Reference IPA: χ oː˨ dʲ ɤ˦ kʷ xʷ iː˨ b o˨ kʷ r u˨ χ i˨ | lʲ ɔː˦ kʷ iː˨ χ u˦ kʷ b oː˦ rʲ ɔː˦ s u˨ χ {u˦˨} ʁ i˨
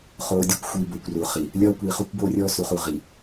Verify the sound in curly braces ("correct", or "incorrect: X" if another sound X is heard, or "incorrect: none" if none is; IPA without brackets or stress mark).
correct